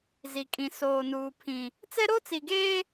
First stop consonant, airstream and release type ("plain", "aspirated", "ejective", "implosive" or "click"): ejective